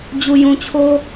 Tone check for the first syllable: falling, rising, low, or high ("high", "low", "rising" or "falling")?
low